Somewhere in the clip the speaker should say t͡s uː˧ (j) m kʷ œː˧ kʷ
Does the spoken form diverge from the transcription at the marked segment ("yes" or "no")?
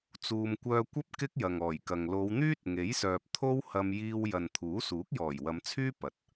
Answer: yes